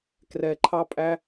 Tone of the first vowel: low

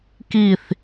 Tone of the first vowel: falling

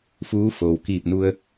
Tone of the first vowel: rising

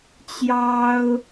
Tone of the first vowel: high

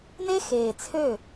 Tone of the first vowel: high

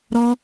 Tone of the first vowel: high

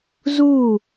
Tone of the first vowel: falling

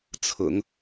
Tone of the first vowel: low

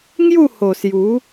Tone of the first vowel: falling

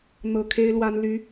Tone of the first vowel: low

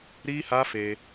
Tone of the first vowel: high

